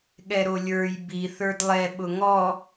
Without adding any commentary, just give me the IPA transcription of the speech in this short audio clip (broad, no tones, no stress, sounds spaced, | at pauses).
ɠ ɛ ɾ o lʲ ə˞ j b i θ ə˞ d lˠ ɛ ɓ ʊ ŋ ɔ